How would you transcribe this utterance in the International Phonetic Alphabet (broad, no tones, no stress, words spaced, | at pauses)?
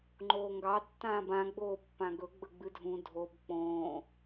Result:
ŋ͡ǃoːŋɡɑ tːãːbã ɡ͡boːpːãɡɵ ɡ͡bəɡ͡bɨdʱũ dʱob k͡põː